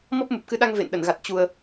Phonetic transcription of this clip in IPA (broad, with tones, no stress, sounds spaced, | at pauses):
m ɔ˦˥ p̚ m u˨˩ p̚ k ɨ˨˦ ɗ a˧ ŋ v ḛ˧˨ n ɗ ə˧˩ n ɣ a˨˩ t̚ t͡ɕ u˨˩ ə̯